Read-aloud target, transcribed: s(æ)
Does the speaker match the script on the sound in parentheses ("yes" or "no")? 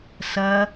no